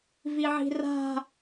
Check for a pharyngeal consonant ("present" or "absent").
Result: present